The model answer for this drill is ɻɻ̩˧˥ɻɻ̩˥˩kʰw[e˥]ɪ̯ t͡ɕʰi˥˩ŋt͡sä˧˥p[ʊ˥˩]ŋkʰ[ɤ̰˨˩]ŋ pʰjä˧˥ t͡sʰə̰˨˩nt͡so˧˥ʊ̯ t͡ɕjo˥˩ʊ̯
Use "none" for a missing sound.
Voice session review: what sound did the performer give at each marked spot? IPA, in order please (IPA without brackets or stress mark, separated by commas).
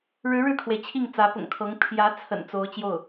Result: e˩, ʊ̰˨˩, ɤ˧˥